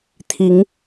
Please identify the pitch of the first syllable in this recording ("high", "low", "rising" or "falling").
rising